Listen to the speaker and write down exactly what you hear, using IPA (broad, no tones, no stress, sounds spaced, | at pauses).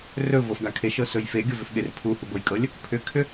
r ɵ v ɤ f ɡ a kʰ e ʃ ɤ s ɵ j f e ɡʲ ɤ v ʏ f ɠ e r pʰ u h u b ɤ j kʼ ɤ lʲ | pʰ ʏ kʰ ʏ